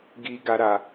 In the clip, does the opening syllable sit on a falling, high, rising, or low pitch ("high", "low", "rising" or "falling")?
low